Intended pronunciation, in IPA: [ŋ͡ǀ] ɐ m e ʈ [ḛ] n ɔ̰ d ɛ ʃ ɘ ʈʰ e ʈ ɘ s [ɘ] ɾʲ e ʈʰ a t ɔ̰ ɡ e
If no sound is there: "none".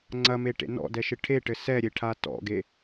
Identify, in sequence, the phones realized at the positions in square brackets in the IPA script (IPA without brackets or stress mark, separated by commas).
ŋ͡ǀ, ḛ, ɛ